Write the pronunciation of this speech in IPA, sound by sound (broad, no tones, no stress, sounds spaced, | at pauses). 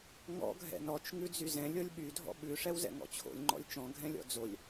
ŋ ɔ̰ ɡʱ ɛ̰ n ɔ t͡ʃ ŋ ʉ d͡z y z ɛ̃ lʲ ɤ lʲ ɓ y dʱ ɔ̰ ɓ ʉ ʂ ɛ w z ɛ̰ ŋ ɔ̰ t͡ɕʰ o̰ lʲ ŋ͡ǃ ɔ̰ lʲ t͡ʃ ɔ̃ ɡʱ ɛ̃ lʲ ɔ̰ d͡z o lʲ